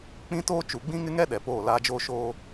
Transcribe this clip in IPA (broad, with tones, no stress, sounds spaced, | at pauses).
k͡p ĩ˦ t oː˦ t͡ʃ u˨ ɡ͡b ĩ˦ ŋ ɪ˦ ŋ ɛ˦ ɗ ɛ˨ p oː˦˨ l aː˦ d͡ʒ oː˦ ʃ oː˦